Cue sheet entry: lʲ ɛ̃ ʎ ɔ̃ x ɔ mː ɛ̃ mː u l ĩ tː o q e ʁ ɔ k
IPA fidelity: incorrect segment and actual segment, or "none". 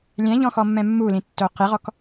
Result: none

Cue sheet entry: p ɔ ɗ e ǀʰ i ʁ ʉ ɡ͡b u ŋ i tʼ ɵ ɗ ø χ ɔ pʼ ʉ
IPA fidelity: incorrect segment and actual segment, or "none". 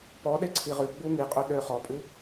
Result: tʼ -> qʼ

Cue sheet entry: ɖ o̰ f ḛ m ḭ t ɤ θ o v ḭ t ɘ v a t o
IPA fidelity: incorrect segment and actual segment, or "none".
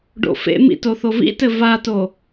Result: ɤ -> o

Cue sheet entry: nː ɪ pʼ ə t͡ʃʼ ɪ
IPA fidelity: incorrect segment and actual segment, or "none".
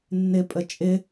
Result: none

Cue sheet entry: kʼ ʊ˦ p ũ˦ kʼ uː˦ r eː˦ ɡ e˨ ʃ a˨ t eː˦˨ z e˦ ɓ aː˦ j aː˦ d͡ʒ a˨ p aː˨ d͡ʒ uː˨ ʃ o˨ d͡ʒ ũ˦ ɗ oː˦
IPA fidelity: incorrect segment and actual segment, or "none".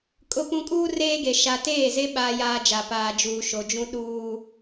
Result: oː˦ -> uː˦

